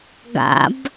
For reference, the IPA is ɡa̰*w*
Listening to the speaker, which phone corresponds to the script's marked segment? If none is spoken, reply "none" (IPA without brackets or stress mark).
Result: b